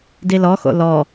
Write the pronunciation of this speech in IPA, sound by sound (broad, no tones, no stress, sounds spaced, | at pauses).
d i l ɔ x o̰ l ɔ